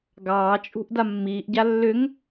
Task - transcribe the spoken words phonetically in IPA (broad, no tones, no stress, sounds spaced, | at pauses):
ɡ ɑː t͡ʃʼ ṳ ʔ d a mː iː ʔ ɟ a lː ʏ ŋ